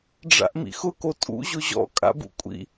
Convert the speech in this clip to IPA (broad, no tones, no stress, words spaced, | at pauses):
ɖ͡ʐa̰ʔmḭxʊ kotʼṵ ʑʊʑɔ̰ kʼa̰bṵkʷʼḭ